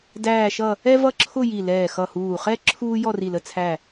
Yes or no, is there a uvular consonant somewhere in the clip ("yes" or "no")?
yes